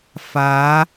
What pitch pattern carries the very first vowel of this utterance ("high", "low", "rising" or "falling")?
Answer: rising